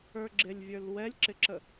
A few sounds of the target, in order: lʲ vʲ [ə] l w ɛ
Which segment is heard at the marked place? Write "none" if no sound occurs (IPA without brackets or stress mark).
ə˞